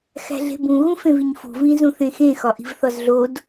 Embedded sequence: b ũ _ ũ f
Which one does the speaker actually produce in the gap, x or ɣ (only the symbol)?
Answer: ɣ